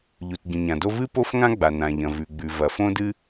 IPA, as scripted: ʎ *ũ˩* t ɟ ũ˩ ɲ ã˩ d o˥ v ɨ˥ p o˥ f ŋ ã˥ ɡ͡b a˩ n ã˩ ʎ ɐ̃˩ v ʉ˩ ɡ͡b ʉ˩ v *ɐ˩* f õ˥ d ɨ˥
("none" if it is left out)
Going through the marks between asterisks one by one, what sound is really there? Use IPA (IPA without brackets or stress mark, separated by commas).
u˩, ɐ˩